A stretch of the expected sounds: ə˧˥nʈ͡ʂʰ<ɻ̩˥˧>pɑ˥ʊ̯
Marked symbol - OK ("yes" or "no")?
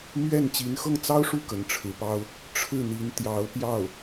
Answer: no